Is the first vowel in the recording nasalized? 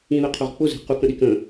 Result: yes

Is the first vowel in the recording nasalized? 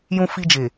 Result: yes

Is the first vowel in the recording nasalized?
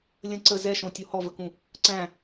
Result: yes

